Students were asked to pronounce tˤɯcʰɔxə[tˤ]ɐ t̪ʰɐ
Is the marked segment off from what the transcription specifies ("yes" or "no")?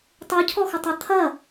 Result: no